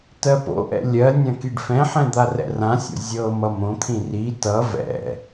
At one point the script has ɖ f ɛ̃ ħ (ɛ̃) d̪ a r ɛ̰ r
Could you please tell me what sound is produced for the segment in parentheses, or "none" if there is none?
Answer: ɛ̃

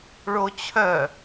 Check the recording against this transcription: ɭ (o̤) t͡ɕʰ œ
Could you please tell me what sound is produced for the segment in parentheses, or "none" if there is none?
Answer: o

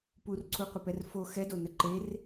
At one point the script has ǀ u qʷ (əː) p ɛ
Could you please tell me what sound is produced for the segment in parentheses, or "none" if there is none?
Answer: ə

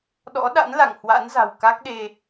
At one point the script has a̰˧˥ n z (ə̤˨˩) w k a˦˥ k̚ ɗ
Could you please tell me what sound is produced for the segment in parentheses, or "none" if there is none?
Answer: a̤˨˩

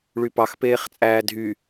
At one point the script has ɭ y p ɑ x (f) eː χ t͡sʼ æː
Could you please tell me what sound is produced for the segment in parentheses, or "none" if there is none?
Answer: p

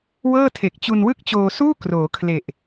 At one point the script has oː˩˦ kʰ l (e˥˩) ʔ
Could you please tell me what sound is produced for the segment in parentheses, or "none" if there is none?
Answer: e˨˩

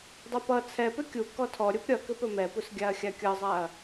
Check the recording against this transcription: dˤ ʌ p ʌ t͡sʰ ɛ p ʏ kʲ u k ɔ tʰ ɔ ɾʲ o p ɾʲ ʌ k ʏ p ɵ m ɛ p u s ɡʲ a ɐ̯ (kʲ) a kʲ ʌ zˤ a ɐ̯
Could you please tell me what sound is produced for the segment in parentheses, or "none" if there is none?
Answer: xʲ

